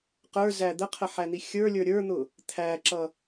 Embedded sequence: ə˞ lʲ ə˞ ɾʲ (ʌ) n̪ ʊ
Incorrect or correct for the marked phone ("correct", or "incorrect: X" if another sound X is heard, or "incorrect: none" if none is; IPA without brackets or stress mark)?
incorrect: ə˞